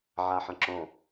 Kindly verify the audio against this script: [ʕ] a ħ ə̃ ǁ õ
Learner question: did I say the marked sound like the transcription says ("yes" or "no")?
yes